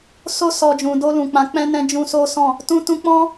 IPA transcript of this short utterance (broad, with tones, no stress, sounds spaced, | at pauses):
s o˧ s ɔ˨ d͡ʒ ũ˨ d o˧ l ũ˨ k͡p ã˨˦ k͡p ɛ̃˦ n ɛ̃˦ d͡ʒ ũ˧ s o˦ s ɔ̃˦˨ | t ũ˧ t ũ˧ k͡p ɔ̃˦